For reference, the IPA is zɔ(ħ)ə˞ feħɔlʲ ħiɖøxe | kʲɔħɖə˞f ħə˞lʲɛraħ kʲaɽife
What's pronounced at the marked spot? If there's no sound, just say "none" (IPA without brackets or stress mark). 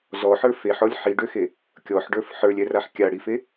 ħ